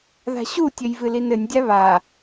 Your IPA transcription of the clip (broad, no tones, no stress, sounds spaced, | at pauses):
ð a̤ ɕ u tʲ ɘ j v ɨ l i n ɘ nʲ dʲ a β a